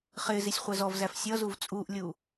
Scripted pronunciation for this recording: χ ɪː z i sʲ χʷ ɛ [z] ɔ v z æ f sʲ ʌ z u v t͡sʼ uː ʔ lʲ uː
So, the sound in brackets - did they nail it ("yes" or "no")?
yes